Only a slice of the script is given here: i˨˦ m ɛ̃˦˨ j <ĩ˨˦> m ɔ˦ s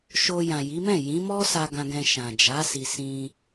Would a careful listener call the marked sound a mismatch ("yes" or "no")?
no